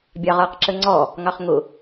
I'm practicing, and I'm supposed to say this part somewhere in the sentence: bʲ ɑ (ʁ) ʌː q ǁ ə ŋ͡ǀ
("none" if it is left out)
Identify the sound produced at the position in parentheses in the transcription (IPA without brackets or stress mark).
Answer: ʁ